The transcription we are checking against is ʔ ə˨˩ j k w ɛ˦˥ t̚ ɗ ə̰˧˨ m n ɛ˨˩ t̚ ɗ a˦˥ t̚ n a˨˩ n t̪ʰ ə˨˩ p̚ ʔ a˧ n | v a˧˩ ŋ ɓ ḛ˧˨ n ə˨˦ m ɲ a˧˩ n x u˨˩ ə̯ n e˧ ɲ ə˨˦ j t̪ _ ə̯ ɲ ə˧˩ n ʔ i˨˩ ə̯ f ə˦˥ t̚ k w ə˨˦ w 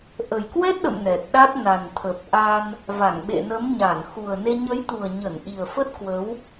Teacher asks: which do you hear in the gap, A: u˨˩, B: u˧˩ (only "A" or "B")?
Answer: A